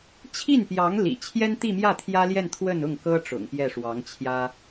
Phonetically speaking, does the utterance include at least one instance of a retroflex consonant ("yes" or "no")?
yes